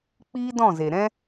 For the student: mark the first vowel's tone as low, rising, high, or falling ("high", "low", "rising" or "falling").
high